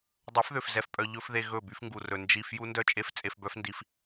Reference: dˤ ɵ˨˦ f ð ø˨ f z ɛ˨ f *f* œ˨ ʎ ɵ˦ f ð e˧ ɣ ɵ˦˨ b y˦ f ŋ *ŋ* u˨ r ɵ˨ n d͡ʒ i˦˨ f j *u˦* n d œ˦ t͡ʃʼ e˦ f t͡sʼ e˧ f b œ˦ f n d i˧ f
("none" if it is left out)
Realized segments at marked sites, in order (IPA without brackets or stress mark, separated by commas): pʼ, ɡ, u˦